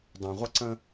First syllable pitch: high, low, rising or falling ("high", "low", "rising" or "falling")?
low